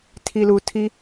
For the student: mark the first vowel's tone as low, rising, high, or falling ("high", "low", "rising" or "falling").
low